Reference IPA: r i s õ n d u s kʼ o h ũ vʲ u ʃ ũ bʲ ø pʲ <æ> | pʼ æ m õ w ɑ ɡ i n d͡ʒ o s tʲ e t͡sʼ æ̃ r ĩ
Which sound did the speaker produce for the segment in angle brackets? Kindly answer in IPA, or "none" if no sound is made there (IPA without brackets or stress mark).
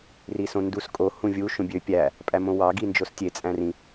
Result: æ